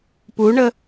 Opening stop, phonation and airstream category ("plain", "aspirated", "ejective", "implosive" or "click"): plain